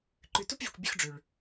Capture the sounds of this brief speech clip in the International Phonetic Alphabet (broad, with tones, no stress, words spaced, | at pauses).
ǃʉ˨tu˦pvʲɵ˨kʷ bʲɵ˦xɖ͡ʐʉ˨ɭ